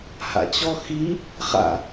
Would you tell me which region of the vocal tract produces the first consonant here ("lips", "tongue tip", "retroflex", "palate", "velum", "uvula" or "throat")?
throat